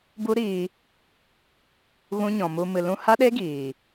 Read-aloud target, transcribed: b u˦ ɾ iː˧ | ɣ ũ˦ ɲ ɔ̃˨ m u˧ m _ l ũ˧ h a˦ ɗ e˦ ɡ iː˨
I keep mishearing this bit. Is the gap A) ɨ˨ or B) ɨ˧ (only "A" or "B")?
A